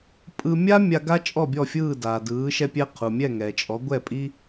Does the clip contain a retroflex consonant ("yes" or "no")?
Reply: no